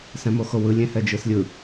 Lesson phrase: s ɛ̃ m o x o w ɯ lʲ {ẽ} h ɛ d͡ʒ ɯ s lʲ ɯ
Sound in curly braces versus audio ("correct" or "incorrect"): correct